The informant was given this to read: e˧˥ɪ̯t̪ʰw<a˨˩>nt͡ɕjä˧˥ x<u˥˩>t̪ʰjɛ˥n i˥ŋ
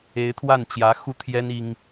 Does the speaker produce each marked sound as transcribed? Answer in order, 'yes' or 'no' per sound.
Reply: no, no

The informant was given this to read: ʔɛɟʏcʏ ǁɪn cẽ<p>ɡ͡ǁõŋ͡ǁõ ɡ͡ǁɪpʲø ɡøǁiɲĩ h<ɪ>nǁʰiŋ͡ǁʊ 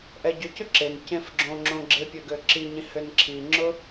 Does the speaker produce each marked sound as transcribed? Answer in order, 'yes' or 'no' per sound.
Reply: no, no

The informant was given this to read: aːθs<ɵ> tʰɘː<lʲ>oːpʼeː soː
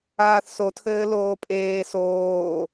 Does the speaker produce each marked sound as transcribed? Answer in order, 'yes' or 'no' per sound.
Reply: no, no

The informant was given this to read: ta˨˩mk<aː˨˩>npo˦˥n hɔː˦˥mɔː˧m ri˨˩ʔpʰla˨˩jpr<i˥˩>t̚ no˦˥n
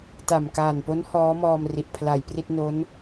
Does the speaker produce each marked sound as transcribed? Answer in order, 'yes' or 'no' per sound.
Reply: yes, yes

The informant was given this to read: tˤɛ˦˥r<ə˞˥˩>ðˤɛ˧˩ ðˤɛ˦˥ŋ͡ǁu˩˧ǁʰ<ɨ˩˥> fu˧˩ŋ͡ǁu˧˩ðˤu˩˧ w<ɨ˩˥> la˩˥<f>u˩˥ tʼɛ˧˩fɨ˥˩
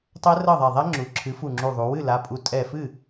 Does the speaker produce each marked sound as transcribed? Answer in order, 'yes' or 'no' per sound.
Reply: no, yes, no, no

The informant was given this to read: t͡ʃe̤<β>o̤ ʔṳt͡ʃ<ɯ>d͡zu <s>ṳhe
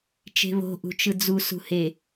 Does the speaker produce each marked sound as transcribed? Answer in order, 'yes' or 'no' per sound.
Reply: yes, yes, yes

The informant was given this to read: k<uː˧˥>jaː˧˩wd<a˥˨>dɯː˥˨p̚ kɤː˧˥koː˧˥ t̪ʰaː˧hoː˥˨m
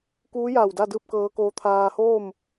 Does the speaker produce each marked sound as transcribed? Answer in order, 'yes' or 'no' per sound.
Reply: yes, yes

